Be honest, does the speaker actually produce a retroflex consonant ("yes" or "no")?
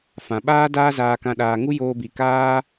no